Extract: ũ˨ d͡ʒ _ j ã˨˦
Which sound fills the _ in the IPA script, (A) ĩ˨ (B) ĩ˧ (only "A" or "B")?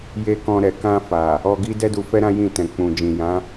A